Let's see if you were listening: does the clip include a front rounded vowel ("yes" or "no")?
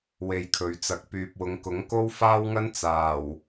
yes